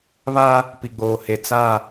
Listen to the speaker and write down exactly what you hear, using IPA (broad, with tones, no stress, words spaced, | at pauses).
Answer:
βa˦ | pi˨ɡ͡boː˨he˨ t͡sa˦˨